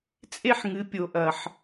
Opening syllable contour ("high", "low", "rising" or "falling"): high